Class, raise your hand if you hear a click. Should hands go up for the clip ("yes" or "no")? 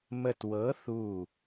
no